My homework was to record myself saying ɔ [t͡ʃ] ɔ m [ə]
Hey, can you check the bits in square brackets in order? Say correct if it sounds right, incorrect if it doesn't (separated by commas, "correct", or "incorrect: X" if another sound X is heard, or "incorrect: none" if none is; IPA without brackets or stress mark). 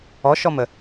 incorrect: ʃ, correct